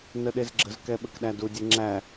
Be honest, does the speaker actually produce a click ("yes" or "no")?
yes